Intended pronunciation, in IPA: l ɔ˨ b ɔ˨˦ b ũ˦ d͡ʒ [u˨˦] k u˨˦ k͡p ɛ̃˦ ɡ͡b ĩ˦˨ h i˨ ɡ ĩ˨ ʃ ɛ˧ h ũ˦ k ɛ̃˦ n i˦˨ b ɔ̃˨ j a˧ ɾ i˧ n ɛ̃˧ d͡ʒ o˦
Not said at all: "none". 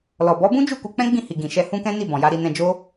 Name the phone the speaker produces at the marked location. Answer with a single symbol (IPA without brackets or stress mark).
u˦˨